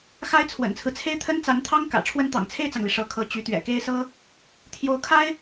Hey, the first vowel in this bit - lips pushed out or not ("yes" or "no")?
no